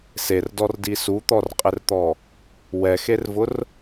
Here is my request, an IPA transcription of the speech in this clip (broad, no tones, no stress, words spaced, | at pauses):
serdɔrdi sut̪ɔrqʼɪrt̪ɔ | wɛxervʊr